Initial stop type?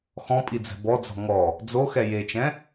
ejective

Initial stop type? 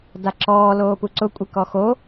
plain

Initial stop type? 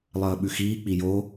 implosive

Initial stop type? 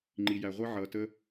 click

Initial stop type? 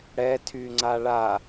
aspirated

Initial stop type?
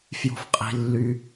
ejective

